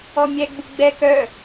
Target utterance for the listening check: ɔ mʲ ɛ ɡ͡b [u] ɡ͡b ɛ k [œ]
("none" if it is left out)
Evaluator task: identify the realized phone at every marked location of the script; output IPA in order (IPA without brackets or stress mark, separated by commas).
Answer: u, œ